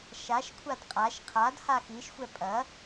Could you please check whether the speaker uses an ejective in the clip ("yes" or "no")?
yes